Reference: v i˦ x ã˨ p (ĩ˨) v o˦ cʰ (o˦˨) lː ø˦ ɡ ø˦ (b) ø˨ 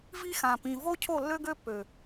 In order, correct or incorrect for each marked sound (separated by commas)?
correct, correct, incorrect